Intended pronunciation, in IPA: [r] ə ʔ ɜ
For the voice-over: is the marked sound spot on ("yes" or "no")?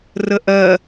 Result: yes